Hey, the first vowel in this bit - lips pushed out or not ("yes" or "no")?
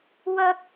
no